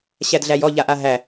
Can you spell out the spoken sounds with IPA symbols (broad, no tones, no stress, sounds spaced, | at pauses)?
ɕ æ d ɮ æ j ɔ ʎ a ʔ a ɦ æ